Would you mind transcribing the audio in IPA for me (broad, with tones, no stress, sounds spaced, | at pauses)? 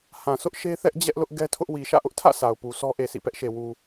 h ã˨ sʰ ʊ˦ ʔ ʃ e˦ θ ɛ˦ ʔ d͡ʑ ɛ˦ ʔ l ʊ˦ ʔ ɡ ɛ˦ tʰ ʊ˦ ʔ w i˨ ʃ ä̰˦˨ ʔ ʊ˦ ʔ tʰ ä̰˦˨ sʰ a˨ ʊ̯ p u˨ sʰ ɔ˦ ʔ e˨ sʰ ḭ˦˨ p ɛ˦ ʔ ʃ e˨ w u˨